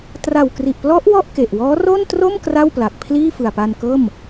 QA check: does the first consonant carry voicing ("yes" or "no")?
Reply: no